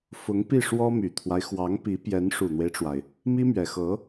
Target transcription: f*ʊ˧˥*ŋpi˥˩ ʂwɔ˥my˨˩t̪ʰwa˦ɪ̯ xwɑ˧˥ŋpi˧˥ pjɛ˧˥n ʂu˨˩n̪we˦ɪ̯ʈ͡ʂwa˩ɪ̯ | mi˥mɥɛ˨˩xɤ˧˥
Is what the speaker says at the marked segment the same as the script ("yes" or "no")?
yes